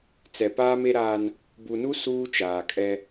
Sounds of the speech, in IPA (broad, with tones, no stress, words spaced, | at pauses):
t͡sɛ˨paː˦me˦ɾaː˦n | bu˨nu˦ suː˦ t͡ʃaː˨kʼɛ˦